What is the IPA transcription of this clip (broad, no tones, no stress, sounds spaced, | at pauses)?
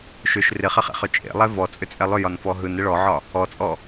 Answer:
ʃ ʏ ʃ r ɪ χ ɪ χ ḛ χ ʏ t͡ʃʼ ḛ lˠ ɛ v ɔ t͡sʼ ʏ t͡sʼ ɛ lˠ ʏ j ɒ n f ɔ ɦ ɯ n ɪ ɭ ɔ ʕ ɒ | ɔ t͡sʼ ɔ